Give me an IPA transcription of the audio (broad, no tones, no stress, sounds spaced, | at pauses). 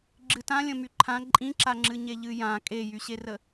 ɡ͡ǁ ɨ t ã lʲ ə̃ m y ǃʰ ã ǃʼ ĩ ǁ a ŋ͡ǁ ɨ ɲ e ʎ ɨ j ã kʼ e j y ɕ e r ə